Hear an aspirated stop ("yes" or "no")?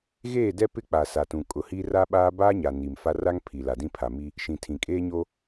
yes